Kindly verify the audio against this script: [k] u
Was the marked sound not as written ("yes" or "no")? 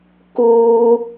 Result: no